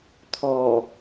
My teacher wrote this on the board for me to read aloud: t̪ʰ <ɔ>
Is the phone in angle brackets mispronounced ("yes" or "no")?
no